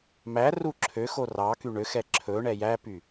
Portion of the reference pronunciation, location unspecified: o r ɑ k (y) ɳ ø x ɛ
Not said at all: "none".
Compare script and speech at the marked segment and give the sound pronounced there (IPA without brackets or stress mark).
y